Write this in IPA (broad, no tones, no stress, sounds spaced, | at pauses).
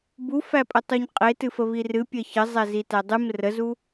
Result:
b u f æ pʼ ə tˤ u ɲ qʼ e t ɨ f ə β i r ɨ pʲ ɜ ç ə zˤ ɛ z i t æ dˤ ɨ m r ə z u